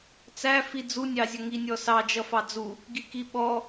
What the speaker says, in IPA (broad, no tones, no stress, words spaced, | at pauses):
t͡sæ fid͡zu nʲɑzʲʌŋi nʲɔsɑ d͡ʒʌfɑd͡zu | ɡikiɓɔ